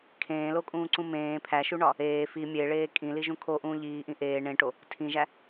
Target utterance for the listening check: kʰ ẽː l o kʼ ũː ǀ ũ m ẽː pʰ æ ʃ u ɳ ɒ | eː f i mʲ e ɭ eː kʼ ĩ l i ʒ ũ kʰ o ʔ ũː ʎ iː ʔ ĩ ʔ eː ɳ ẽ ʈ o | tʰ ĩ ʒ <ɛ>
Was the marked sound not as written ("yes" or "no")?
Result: yes